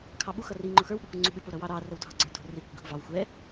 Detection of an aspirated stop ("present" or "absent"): present